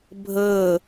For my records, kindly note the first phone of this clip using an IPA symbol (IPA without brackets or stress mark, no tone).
bʱ